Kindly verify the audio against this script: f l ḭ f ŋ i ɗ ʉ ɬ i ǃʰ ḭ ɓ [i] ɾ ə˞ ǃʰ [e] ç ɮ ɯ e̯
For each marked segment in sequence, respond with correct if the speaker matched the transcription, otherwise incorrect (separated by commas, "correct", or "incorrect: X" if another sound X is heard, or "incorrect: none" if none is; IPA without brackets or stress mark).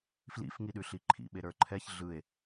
incorrect: e, incorrect: ɛ